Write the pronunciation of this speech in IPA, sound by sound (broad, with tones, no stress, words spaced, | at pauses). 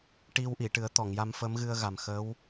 ʈi˧wʔi˨˩˨ʈɨ˨˩˦ə̯t̪ɔ˨˩˨ŋ ja˧mfə˧˥mɣɨ˧ə̯ɣa˨˩m xə˧˥w